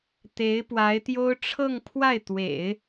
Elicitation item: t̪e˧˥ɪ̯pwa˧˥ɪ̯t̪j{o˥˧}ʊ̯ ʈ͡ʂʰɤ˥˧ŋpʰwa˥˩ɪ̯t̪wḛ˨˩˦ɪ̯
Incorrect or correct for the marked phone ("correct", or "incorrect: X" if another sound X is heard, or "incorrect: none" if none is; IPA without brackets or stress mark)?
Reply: incorrect: o˥